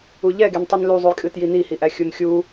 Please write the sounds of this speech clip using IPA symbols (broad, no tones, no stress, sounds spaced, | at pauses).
u ʎ ɛ ɡ e n tˤ ɨ n l u zˤ u j kʼ ɨ t j i n i h i ʔ æ xʲ u n xʲ u